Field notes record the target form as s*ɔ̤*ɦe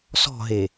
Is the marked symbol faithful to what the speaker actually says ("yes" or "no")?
yes